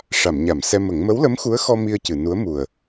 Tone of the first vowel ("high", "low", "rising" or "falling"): low